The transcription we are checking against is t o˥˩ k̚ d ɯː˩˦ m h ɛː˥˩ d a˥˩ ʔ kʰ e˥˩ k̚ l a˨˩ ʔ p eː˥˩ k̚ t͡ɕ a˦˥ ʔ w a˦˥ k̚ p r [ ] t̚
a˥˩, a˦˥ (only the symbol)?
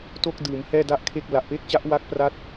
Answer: a˦˥